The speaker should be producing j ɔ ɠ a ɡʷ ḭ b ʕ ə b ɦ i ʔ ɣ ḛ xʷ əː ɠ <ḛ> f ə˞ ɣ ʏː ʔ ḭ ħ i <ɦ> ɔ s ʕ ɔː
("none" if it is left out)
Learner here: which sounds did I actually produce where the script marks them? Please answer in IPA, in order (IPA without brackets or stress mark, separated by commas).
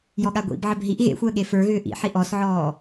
e, ʔ